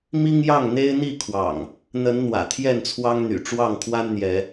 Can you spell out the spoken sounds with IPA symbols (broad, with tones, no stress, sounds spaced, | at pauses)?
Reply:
m i˦ ŋ j ɑ˥˨ ŋ n̪ e˦ ɪ̯ n̪ i˥˨ kʰ w ɑ̰˨˩ ŋ | n̪ ə˨˦ n n̪ w ä̰˨˩ t̪ʰ j ɛ˥˨ n t͡sʰ w ɑ˦ ŋ n̪ y̰˨˩ ʈ͡ʂ w ɑ˥˨ ŋ kʰ w a˦ n n̪ j ɛ˨˦